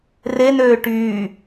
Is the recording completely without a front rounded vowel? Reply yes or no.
no